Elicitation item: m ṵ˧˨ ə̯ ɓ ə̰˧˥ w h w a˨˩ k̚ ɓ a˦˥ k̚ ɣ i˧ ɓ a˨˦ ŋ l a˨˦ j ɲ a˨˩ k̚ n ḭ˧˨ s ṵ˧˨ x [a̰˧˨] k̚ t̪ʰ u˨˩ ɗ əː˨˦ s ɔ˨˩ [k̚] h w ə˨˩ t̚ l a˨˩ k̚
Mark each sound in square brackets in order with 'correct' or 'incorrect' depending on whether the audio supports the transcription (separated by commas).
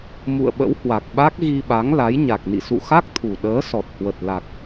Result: incorrect, incorrect